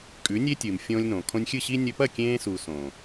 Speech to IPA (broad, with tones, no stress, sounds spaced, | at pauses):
kʼ ʉ˨˦ nʲ e˦ tʲ ɨː˨ m fʲ õː˧ lʲ n õː˨ kʰ õ˧ nʲ xʲ ɨ˦˨ ɕ i˦ nʲ ɵ˧ p ɐ˦˨ kʲ ẽː˧ s u˨ s õː˨